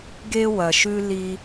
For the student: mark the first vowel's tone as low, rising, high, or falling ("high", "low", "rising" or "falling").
high